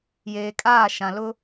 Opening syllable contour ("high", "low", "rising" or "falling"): low